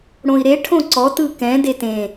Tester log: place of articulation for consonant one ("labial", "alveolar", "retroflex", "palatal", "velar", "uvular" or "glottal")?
retroflex